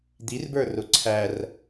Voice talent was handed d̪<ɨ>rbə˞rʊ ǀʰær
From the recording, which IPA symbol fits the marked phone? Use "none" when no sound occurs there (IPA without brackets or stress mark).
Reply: i